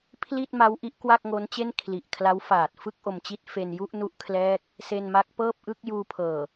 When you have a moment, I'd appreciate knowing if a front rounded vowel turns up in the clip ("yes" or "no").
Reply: no